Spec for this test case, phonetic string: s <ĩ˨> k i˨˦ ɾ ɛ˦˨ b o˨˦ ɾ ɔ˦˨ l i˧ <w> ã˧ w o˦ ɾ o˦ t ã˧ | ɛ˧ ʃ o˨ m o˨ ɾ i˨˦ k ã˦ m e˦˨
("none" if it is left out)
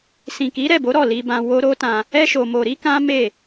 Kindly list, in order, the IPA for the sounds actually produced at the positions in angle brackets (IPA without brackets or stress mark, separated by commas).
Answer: ĩ˨, b